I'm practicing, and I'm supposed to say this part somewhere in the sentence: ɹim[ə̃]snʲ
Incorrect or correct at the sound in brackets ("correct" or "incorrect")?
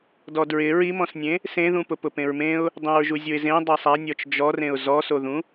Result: incorrect